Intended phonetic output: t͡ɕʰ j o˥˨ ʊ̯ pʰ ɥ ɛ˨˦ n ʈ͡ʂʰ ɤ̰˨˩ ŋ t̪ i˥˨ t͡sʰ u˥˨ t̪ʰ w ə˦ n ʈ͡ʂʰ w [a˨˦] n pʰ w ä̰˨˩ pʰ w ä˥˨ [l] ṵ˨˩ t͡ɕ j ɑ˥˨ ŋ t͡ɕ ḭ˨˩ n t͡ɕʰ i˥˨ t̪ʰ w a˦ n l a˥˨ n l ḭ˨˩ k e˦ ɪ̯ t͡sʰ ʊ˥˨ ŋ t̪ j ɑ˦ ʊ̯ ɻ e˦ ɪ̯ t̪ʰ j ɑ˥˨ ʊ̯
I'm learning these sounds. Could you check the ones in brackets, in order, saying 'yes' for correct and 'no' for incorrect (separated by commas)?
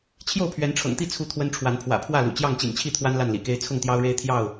yes, yes